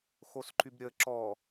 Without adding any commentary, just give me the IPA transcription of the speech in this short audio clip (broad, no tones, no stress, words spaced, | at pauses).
xosǃybɾʲə ǁɔ